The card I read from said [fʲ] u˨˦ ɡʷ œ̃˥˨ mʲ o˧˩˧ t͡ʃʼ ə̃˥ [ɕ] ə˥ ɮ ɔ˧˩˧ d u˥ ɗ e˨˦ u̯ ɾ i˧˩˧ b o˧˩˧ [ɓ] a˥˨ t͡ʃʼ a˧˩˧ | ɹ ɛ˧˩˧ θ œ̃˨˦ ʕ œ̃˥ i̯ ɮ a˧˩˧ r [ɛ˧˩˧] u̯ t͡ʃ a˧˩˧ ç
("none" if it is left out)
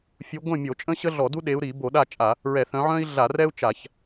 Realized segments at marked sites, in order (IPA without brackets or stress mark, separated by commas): fʲ, ɕ, ɗ, ɛ˥